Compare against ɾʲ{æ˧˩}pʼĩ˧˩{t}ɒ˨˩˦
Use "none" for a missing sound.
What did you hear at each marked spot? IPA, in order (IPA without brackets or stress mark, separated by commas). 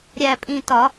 æ˧˩, t